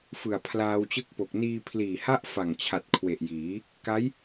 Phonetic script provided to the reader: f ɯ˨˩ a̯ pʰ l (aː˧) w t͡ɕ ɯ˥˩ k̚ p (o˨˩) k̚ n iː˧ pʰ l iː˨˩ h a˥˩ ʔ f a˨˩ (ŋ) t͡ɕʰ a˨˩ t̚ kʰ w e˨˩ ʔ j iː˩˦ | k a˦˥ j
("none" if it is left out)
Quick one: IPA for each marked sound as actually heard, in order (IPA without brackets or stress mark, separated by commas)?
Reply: aː˧, o˨˩, ŋ